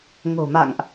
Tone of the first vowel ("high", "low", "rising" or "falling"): low